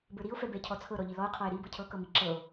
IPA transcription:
b ə˞ ɾ i o̯ f ɛ b ɛ cʰ ɔ t͡sʰ ɤ ɾ ɔ ʎ i l ɔ o̯ qʰ ɔ e̯ ɾ i b ɤ cʰ ɤ k ɤ m i ǁ ɤ o̯

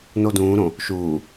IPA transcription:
n o d ũː ɾ õ | ʃ uː

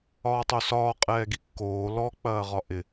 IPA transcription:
ɒː tˤ o s ɒː qʼ ɛː ɡ i kː oː l ɔ k͡p ɐː ʁ ɒ ʔ ɪ

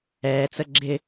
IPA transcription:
ɛː t͡s ə ɡ͡ǁ ɪ

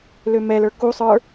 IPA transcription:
l ø m ɛ l ə˞ k u sˤ ə˞

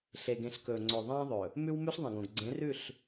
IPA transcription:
ɬ e˨ ɡ ẽ˨ ɬ k ɵː˨ ŋ͡ǀ ɵː˨ ðˤ ẽː˦ ðˤ ɵ˨ | m ʉ˦ w m ʉ˦ ɬ ðˤ ĩ˨ ɡ õ˨ ɡ ɡ͡ǀ ẽ˨˦ r ʉ˦˨ ɬ

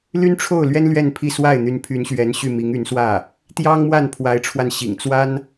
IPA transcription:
l y˥ n ʈ͡ʂʰ o˥˩ ʊ̯ l ɥ ɛ˥ n l ɥ ɛ˥˧ n pʰ i˥˧ s w a˥˩ ɪ̯ n̪ y˧˥ n pʰ y˧˥ n ɕ ɥ ɛ˧˥ n ɕ y˥˩ m i˧˥ ŋ y˧˥ n s w ä˥˩ | t̪ j ɑ˥ ŋ m w a˥˩ n pʰ w a˧˥ ɪ̯ ʈ͡ʂʰ w a˧ n ɕ ḭ˨˩ ŋ t͡s w a˥ n

